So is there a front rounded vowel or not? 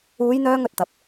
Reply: yes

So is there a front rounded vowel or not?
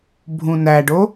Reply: no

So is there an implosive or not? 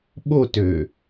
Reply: yes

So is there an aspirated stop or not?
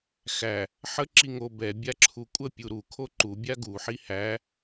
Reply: yes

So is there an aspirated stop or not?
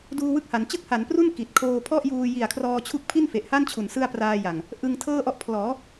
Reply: yes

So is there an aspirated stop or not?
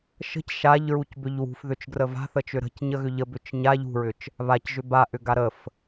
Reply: no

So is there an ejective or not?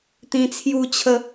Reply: no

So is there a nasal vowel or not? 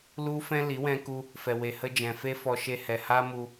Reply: yes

